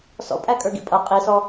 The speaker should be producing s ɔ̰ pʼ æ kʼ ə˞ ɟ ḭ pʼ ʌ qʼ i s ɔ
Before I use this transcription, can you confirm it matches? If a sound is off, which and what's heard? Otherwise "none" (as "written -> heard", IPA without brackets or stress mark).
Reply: ɟ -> ɡ